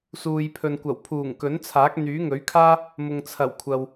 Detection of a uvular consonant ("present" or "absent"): absent